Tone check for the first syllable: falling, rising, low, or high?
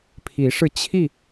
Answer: rising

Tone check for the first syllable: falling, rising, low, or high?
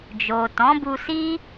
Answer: low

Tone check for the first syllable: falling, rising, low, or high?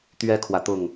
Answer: high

